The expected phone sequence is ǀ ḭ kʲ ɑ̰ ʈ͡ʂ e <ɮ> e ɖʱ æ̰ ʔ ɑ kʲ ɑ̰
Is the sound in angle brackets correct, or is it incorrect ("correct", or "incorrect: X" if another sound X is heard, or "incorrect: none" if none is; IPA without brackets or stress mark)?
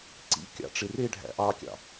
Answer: incorrect: r